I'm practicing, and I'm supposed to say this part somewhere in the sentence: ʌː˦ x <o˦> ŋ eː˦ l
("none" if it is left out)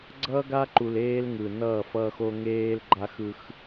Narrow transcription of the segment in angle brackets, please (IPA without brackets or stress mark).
o˦